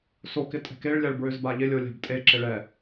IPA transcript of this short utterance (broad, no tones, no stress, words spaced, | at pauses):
sok ɪtʼɛ̤keɭ lʲaɭbɹøzbaʎɪ lʲolʲa̤btʼe ǁɪɭɛ